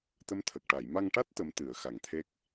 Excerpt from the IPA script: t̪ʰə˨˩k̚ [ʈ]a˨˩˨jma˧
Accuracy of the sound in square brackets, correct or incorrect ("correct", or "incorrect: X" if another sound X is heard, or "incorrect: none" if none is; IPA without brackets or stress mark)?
correct